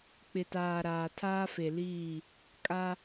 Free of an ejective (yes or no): no